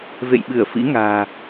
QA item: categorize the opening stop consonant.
implosive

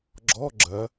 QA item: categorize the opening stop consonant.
click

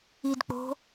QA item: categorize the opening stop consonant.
plain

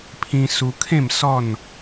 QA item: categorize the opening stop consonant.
aspirated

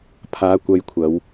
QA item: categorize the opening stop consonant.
aspirated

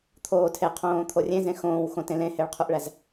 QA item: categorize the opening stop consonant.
aspirated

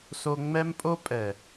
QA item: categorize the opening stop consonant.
ejective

